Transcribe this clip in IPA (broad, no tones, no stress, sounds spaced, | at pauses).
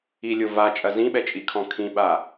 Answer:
i lʲ o v a t͡ʃʼ ɐ z ĩ ɓ ɛ t͡ʃʼ i kʰ ɔ̃ kʰ ĩ ɓ a